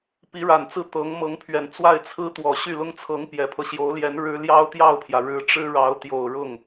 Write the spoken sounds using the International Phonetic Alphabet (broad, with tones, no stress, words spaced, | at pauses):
pi˧˥ɻa˨˩nt͡sɹ̩˥˩ t̪ɤ˧˥ŋ mɤ˧˥ŋpʰɥɛ˨˩n t͡swa˥˩ɪ̯t͡sʰɹ̩˥t̪wɔ˨˩ ɕy˥˩lʊ˥ŋt͡sʰɤ˧˥ŋ pjɛ˨˩pʰɤ˦ɕjo˧˥ʊ̯ljɛ˧˥n ɻɻ̩˥ ljɑ˥ʊ̯t̪jɑ˥˩ʊ̯pʰjä˩ ɻɻ̩˧˥ʈ͡ʂɻ̩˥ ɻɑ˧˥ʊ̯t̪jo˨˩ʊ̯ɻʊ˥˩ŋ